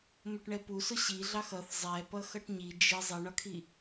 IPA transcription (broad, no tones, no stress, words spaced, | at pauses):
mʊʈɳɛpusʊ ɕiɮɑx ʌθ zˤɛ pʌxʌʈɲi d͡ʒɪ zˤiɳɒkʰi